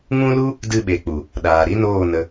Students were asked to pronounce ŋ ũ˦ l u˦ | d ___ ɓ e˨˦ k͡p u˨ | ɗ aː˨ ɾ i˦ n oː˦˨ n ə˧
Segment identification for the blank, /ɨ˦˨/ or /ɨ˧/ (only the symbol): ɨ˦˨